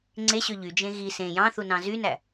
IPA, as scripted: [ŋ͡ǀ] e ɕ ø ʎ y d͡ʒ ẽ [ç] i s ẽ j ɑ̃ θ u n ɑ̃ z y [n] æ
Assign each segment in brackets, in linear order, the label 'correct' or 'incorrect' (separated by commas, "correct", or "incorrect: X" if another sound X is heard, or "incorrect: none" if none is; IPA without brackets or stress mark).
correct, incorrect: ɣ, correct